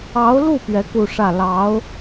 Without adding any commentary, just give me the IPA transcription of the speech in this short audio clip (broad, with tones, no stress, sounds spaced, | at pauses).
ɑ˧˥ ʊ̯ l u˥˩ p ɥ ɛ˧˥ k u˥˧ ʂ ä˥˩ l ɑ˧˥ ʊ̯